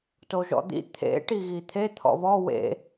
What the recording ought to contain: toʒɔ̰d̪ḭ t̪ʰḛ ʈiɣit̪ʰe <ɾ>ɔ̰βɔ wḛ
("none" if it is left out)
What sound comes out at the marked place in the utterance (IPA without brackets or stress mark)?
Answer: t̪ʰ